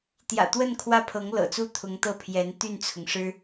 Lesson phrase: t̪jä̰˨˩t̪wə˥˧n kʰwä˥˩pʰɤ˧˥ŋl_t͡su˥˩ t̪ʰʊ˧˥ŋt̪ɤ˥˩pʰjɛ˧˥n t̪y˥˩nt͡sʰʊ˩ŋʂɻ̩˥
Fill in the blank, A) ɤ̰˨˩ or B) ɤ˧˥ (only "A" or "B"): A